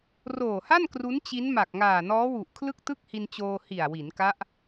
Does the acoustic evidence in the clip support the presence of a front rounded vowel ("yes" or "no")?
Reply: no